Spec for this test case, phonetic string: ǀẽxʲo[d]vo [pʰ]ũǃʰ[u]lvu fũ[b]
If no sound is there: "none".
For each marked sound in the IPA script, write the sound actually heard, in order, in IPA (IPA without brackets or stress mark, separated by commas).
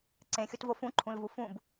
t, f, ũ, b